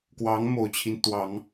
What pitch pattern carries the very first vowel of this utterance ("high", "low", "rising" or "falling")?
rising